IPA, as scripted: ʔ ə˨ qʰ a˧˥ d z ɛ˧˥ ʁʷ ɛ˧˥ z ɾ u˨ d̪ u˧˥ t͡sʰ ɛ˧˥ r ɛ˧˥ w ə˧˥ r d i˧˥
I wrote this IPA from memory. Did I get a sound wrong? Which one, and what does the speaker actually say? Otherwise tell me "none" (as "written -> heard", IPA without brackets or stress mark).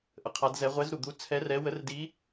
none